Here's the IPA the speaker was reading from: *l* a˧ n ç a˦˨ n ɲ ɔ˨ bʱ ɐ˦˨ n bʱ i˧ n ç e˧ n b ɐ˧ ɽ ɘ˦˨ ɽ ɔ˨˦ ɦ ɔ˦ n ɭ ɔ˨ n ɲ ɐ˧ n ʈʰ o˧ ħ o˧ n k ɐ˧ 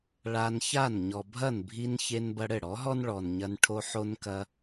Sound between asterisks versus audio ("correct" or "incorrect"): incorrect